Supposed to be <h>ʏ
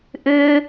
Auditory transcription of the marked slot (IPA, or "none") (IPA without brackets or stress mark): ʔ